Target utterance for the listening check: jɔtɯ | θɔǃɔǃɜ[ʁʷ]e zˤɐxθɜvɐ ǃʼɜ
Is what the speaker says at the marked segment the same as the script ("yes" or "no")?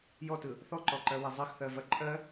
no